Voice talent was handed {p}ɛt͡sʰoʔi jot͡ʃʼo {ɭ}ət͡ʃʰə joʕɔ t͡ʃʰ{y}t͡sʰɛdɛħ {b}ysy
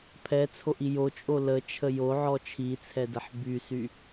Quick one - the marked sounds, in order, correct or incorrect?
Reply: incorrect: pʰ, incorrect: l, incorrect: i, correct

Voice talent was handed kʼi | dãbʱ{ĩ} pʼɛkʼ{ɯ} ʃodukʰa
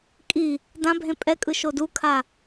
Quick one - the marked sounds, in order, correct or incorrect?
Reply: incorrect: ẽ, correct

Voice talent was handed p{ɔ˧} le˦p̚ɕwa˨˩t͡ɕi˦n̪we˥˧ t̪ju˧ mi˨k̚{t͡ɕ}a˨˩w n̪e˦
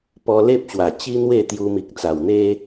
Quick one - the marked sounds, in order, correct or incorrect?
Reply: correct, incorrect: t͡s

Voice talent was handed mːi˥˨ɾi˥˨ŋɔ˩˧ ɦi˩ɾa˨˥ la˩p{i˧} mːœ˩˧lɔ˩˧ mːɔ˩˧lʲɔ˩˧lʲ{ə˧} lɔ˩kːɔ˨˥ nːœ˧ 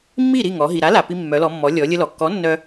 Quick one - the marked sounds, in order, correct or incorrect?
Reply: correct, correct

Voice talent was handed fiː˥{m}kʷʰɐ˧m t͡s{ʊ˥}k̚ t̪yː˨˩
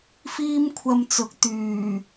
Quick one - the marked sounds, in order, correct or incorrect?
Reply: correct, incorrect: ʊ˨˥

